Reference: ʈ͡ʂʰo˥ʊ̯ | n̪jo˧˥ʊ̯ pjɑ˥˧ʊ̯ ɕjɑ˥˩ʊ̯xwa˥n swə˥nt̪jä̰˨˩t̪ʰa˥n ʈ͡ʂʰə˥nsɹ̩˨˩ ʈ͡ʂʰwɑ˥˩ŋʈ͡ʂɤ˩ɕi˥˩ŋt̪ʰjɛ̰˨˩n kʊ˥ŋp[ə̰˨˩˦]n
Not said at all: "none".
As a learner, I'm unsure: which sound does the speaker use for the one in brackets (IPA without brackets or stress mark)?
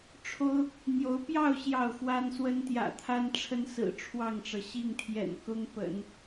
ə̰˨˩˦